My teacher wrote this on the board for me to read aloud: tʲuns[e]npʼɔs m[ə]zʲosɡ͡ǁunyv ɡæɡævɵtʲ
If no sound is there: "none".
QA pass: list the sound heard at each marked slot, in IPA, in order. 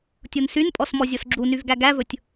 y, ɔ

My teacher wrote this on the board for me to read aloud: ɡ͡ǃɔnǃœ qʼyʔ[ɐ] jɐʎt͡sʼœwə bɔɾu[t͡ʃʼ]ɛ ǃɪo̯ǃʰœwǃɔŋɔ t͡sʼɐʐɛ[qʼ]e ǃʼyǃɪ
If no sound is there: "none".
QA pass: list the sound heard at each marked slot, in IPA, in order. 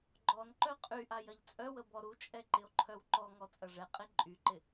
a, t͡ʃʼ, qʼ

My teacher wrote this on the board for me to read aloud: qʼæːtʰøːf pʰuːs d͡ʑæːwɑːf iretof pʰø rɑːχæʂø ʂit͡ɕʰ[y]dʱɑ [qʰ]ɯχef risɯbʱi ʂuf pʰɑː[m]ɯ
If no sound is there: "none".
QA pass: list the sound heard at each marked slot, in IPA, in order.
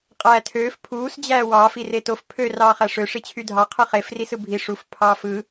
y, qʰ, f

